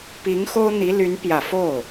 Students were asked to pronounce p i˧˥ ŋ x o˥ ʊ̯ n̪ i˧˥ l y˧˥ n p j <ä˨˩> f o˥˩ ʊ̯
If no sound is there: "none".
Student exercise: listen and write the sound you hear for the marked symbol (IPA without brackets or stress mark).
ä˨˩